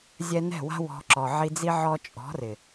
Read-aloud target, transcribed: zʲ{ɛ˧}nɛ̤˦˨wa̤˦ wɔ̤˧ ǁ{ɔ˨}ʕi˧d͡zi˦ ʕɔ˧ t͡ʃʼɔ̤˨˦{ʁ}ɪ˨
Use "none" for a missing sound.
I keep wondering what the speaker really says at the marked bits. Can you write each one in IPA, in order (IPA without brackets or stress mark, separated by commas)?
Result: ɛ˧, ɔ˨, r